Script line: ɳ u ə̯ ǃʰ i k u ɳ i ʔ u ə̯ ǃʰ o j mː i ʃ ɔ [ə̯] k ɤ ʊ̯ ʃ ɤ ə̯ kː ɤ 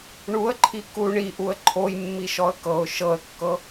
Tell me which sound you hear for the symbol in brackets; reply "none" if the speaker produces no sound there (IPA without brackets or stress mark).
ə̯